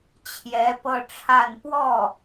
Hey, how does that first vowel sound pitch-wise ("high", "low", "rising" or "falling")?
rising